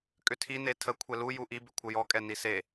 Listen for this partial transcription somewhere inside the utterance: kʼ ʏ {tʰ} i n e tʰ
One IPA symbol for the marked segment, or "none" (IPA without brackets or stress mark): tʰ